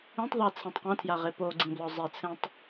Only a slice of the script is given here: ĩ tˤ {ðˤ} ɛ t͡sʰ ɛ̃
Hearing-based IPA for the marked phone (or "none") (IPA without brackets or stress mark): ðˤ